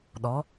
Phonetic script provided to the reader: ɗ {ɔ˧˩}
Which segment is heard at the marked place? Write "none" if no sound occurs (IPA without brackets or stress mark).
ɔ˩˧